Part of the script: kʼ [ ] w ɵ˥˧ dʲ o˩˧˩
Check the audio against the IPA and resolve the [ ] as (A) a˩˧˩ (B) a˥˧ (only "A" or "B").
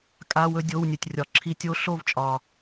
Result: A